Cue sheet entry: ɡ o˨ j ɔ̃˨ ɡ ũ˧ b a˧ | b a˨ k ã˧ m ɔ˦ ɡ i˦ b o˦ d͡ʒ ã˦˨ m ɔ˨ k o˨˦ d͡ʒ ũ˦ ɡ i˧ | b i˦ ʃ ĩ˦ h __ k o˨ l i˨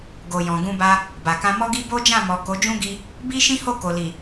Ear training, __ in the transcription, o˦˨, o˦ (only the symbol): o˦˨